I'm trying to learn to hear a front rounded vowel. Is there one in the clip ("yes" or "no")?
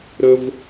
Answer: no